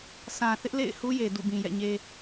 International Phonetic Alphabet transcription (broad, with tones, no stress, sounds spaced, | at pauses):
sʰ ã˨ θ ɪ˦ ʔ l ḛ˦˨ ɪ̯ h u˦ j e˨ d ṵ˦˨ b ĩ˨ j ɛ̰˦˨ ɲ e˦